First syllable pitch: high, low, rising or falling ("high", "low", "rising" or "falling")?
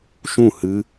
falling